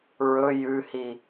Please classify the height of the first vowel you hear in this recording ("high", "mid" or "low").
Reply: mid